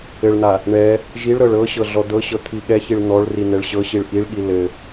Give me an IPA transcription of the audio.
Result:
ɘ ɭ n̪ a | ɳ ɛ | ʒ i ɭ ɾ ɤ ɭ ɤ ɕ ɤ ɮ ɔ d̪ ɤ ɕ ɤ t̪ʰ i ɠ ɛ ç i ɭ n̪ ɔ ɭ r i n̪ ɛ ɭ ɕ ɤ ɕ i ɭ ʔ i ɭ ɠ i l ɘ

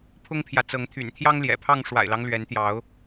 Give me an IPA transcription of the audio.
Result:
pʰ ʊ˦ ŋ pʰ j ä˨ t͡s ɤ˨˦ ŋ t̪ʰ y̰˨˩ n t̪ʰ j ɑ˦ ŋ l j ɛ̰˨˩ pʰ ɑ˥˨ ŋ ʂ w a̰˨˩ ɪ̯ l ɑ˦ ŋ l ɥ ɛ˨˦ n t̪ j ɑ˨˦ ʊ̯

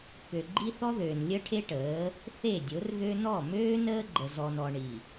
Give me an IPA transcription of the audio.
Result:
k ø˨ ɡ͡ǃ i˦ θ ɔ˦ ð øː˨ n lʲ ə˦ ʈʰ e˦ ʈ əː˨˦ | θ e˦˨ dʲ o˨˦ r ɣ ø˦ n ɔ˦˨ m øː˦ n əː˦ ɡ͡ǃ ə˨ z ɔ˨ n ɔ˨ ɳ i˨

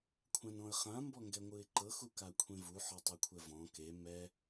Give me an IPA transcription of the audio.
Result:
kʷʰ ã n ɔ̃ ə̯ χ ã m b ɔ ŋ ɡ ɛ ŋʷ ɯ ɪ̯ ǃ ɤ x u k a kʷʰ ẽ v u ħ ɔ tˤ o kʷʰ ɛ v ɔ̃ k e m ɛ

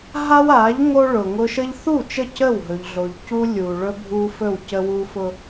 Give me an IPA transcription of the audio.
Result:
ɦ a˦ w a˨˦ ʎ ŋ o˦ ɭ ʊ˨ ŋ ʊ˦ ʃ ə˦ ʎ θ u˦˨ t͡ʃ ə˦˨ c ə˦˨ w ɦ ɵ˨ ʎ ɮ o˨ ʎ c u˦ lʲ u˨ ɭ ɵ˦ bʱ u˦ f ɵ˦˨ w c ə˦ w u˦ f ʊ˦

